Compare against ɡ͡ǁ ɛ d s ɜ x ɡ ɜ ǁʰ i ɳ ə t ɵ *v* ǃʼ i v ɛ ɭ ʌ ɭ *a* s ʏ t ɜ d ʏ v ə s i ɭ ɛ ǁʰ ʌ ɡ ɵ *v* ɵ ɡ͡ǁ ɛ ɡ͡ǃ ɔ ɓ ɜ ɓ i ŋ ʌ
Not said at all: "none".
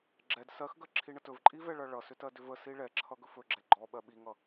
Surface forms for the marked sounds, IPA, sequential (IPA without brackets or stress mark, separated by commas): v, ʌ, f